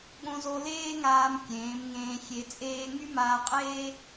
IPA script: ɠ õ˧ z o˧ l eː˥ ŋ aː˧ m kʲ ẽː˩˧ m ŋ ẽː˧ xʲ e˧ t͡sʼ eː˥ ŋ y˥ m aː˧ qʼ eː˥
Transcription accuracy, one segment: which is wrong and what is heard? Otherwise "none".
none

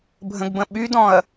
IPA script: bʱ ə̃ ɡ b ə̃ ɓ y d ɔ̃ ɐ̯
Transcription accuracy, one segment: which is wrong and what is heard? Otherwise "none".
none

